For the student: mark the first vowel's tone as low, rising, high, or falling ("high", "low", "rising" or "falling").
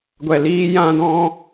low